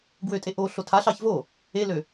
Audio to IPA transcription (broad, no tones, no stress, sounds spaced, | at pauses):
ɡ w ø tʼ e ʔ o ɬ o tʰ a ɬ ɑ ç v o | e l ø